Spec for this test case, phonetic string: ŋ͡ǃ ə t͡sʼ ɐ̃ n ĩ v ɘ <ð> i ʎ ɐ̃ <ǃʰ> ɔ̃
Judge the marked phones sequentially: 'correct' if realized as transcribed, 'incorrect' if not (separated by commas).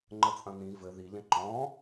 correct, incorrect